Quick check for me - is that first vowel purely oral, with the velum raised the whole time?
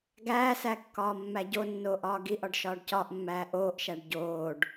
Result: yes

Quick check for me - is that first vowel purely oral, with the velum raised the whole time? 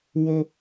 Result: yes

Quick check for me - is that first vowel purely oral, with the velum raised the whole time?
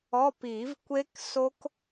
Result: yes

